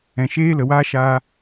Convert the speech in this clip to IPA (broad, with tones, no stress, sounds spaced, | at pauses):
ɛ̃˨ ʃ eː˧ l ə˨ w aː˧ ʃ aː˧